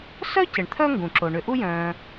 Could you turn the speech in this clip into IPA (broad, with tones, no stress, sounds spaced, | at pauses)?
s œ˥ c ɪ˩ ɳ t̪ʰ œ˦ ŋ ɡ ũ˩ ǁ o˩ ɳ ʏ˨ ʔ u˦ j œ̃ː˨